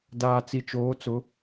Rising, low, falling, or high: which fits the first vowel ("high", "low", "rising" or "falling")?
low